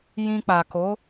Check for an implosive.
absent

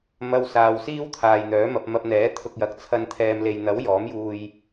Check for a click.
absent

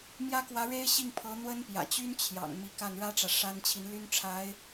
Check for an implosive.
absent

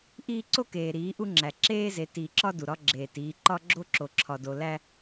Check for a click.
present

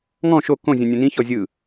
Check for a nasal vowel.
present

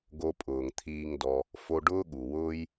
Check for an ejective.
present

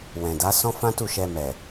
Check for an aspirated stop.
absent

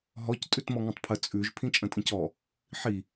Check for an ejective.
present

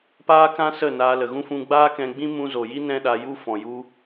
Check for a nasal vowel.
present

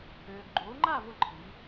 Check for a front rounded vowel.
present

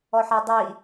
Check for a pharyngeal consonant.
present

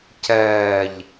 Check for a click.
absent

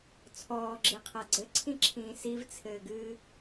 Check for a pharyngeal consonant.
absent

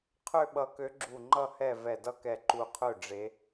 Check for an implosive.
present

